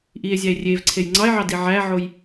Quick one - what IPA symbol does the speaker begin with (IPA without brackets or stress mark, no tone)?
ʔ